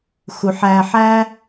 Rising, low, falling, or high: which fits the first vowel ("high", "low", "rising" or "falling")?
low